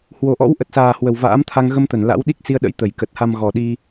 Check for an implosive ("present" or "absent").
present